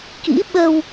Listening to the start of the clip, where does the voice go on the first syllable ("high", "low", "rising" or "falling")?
rising